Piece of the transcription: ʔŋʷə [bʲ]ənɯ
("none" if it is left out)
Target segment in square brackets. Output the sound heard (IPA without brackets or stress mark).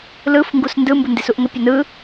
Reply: pʲ